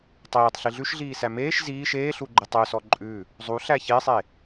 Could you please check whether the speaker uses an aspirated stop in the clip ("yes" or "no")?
no